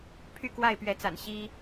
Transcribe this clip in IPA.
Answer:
pʰy˥˨kwa˥˨ɪ̯pɥɛ˨˦t͡sa̰˨˩n ɕi˦

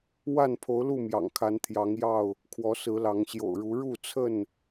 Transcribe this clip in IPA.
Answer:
wa˥˨npʰo˨˦ʊ̯lu˥˨ mjɑ̰˨˩ŋkʰa˨˦nt̪ʰjɑ˨˦ŋ jɑ˥˨ʊ̯ | kʰwɔ˨˦sɹ̩˨˦lɑ˨˦ŋ ɕjo̰˨˩ʊ̯ɻu˨˦ ɻu˥˨t͡sʰə˥˨n

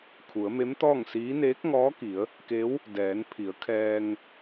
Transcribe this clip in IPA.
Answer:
kʰu˩˧ə̯me˧˥mt̪ɔː˥˨ŋsiː˧˥ neː˧˥k̚ŋɔː˧˥ki˩˧ə̯ | ke˧˥w | dɛː˩˧n pʰi˩˧ə̯kʰɛː˧ŋ

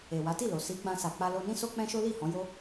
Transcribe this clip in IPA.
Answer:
e˨wa˨˦ti˦˨lo˨ si˨˦ɡ͡bã˧ sa˨k͡pa˧lo˧nĩ˦ so˦k͡pɛ̃˦ʃo˦ li˦˨ hɔ̃˨˦jo˦

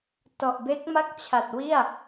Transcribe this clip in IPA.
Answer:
tɔ˨˩ʔbe˦˥k̚ma˥˩k̚t͡ɕʰa˨˩t̚ wi˥˩a̯

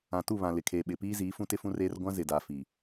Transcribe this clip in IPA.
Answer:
ã˨tu˦˨βã˨ lɪ˨kʰeː˨ɓɪ˨ piː˦ziː˨˦ fũ˦tɪ˦fũ˦reː˦r ɡʷã˦zɪ˨da˨ fiː˨

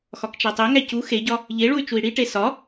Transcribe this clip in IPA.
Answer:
xɒkt͡ʃætˤeŋæ cu xeɟɒ | ʎeɭuy̯ t͡ʃui̯ɽiʈe sɒ

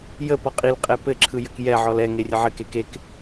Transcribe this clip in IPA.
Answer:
jəpɔ qʼilqʼɛ pɘǁʰɯ jɘkjɛʕɔl ɛ ŋerʲəʕɘke kek

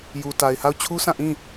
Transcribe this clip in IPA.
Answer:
ju˨ ta˨ɪ̯ha˦˨ʊ̯ t͡ɕʰu˦sã˦˨ ʔĩ˦˨

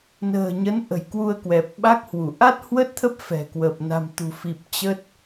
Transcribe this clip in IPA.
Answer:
nə̤ː˨˩ɲə˨˦n ʔə̤˨˩jkwu˧ə̯kwɛ˨˩p̚ ɓa˦˥k̚hwu˧˩ ʔa˦˥t̚hwə˦˥t̚t̪ʰə˦˥p̚ fɛ̤˨˩kwə˨˩p̚ na̤˨˩mt̪ṳ˨˩fi˨˩p̚ t͡ɕə˦˥t̚

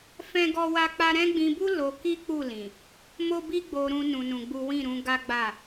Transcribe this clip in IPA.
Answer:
fɛ̃˦ɡɔ˦wa˦k͡pa˦ ɾɛ̃˦ɡ͡bĩ˧bu˦ lo˧ ki˦k͡pu˦˨lĩ˨ | mo˦bi˦ɡ͡bo˧ɾũ˧ nũ˧nũ˧ɡ͡bu˦ wĩ˦˨ɾũ˨˦ ɡa˦ ɡ͡ba˦˨

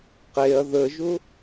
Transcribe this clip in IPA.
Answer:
qeɐ̯ ðəʒʊ

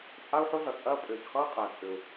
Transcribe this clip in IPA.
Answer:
t͡sʼa˥u̯ħo˥ɮʌ˩t͡sʼɐː˥ pʼʏː˩çχʌː˥ qʼæ˩t͡sʼʏ˩u̯

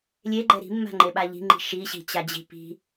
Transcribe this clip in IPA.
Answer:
lʲeɡ͡ǃɛ ɾi̤mːa̤ŋ͡ǃeɓa ʎi̤ŋ͡ǃi̤ ʃiɕi̤t͡ɕad͡ʑi̤ pi̤

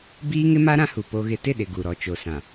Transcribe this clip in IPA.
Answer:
biː˦ŋɪ˦ma˦ ɾã˦hu˨ po˦ɣɪ˦ tɪ˦˨ɗɪ˨ ɡu˨ ɾɔ˨ t͡ʃo˨sã˨

